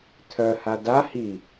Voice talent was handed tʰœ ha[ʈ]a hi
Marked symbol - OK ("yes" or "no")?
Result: no